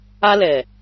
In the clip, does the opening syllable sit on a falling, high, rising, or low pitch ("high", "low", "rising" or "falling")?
high